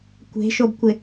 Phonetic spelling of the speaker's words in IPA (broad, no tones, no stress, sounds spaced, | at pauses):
kʷ e̤ ʃ o b kʷ ɪ